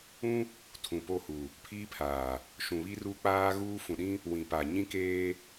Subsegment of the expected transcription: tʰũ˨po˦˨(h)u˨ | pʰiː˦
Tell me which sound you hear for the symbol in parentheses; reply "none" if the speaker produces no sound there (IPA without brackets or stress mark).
h